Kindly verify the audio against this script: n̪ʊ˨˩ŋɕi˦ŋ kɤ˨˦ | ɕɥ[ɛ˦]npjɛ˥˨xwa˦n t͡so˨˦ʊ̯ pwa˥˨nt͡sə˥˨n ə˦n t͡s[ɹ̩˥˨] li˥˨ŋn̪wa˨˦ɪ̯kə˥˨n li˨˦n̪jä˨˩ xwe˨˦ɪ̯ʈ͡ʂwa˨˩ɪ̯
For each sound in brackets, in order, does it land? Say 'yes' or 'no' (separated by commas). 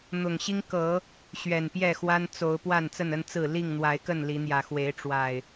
no, yes